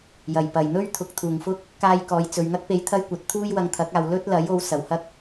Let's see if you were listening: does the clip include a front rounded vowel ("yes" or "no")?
no